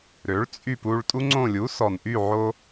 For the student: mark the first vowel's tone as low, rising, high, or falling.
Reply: rising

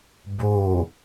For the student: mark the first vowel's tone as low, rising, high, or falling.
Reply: falling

